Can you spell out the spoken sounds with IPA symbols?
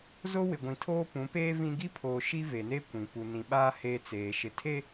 z o˦ w ɪ˨ ɡʷ ĩ˨ tʰ oː˦ p ũ˨˦ p eː˦ v ĩ˦ ɡ i˦ pʰ oː˨ ʃ i˦ v e˨ n eː˦ kʷ ĩ˨ p u˨ n ĩ˨ ɓ aː˦ h eː˦ t͡s eː˨ ʃ ɪ˨ tʰ e˦

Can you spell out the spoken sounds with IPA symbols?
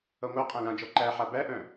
ʌ ŋʷ a qʼ ã l ã d͡ʒ ɔ ǃ æ ħ a b æ ʔ œ̃

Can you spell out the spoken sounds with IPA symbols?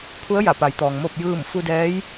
pʰ u˧˥ ə̯ j a˧˩ p a˩˧ j t̪ ɔː˩ ŋ m o˥˨ p̚ j ɯː˥˨ m f u˧ d ɛː˧˥ j

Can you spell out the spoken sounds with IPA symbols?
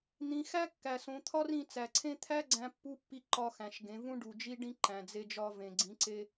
n̪ ĩ˩˧ x æ˥ kː æ˩ s õ˩˧ t̪ʰ ɒ˥ r ĩ˧ t͡s æ˩ ǀʰ ẽ˥ t̪ʰ æ˥ ɡ͡ǀ æ̃˧ pː u˧˥ pː i˧ ǃ ɒ˧ x æ̃˩ ʃ ɡ ẽ˩˧ v ũ˥ ɖ u˩ d͡ʒ i˥ ɖ ĩ˥ ǃ æ̃˩ d͡z e˧ d͡ʒ ɒ˧ v ẽ˩ ɡ͡ǀ ĩ˩˧ ǀ e˧

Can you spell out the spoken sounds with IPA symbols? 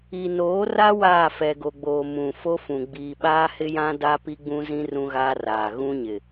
i˨ n oː˨˦ r a˦ w aː˦˨ f ɛ˨ ɡ o˨ ɡ͡b oː˨ m ũ˨ f o˦ f ũ˨ ɡ͡b iː˨ ɓ aː˦ h ɪ˦ j ã˦ d a˦ p i˦ ɡ͡b ũ˦ z ĩ˦ r ũ˦ ɣ aː˦ r aː˨ ɣ ũ˦ ɲ ɪ˨

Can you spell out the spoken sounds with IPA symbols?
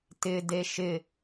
t ɪ d e ʃ ɪ

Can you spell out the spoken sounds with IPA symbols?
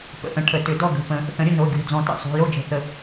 p ə̰˨˩˦ ʔ ə̃˩˧˩ ʈʰ ə˨˩˦ t ʏ˨˩˦ d ɔ˥˨ ɡ ə̤˩˧˩ p ə̃˨˩˦ | θ ə̃˨˩˦ ɾʲ ə˥˨ n o˩˧˩ ɡʲ o̤˩˧˩ d͡z ɔ̃˨˩˦ t ə̰˩˧˩ sˤ o̤˩˧˩ j o˥˨ d͡ʒ ə̤˨˩˦ θ ə˨˩˦

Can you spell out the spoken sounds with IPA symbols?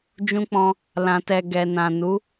d͡ʒ ũ˧ k͡p ɔ̃˧ | l ã˨ t ɛ˨ ɡ ɛ˨ n ã˨ n u˨˦

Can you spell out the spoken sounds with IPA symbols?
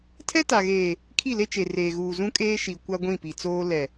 tʰ ɛ˦ t a˨ ɣ eː˨ | kʰ i˦˨ l e˦ t͡ʃ e˨ r eː˨ ɣ uː˨ z ũ˦ kʼ eː˦ ʃ i˨ kʷ a˦ ɡʷ ĩ˦˨ p i˨ t͡s oː˦ l ɛ˨

